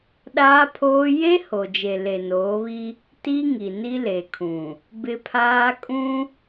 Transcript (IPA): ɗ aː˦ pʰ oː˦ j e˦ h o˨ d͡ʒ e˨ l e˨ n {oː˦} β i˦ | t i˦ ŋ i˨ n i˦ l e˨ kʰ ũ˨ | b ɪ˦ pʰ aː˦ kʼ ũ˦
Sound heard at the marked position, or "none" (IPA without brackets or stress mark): oː˨˦